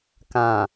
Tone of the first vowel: low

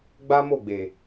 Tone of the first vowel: high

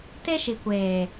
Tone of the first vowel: high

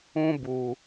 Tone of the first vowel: high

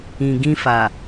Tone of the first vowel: low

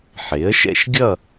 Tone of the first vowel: rising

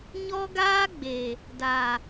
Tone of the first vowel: high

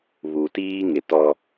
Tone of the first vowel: low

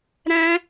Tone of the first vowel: high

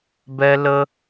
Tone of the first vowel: high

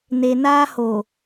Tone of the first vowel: low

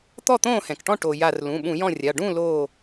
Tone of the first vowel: falling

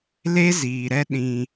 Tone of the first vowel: high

